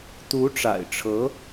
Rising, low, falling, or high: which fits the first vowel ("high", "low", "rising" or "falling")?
rising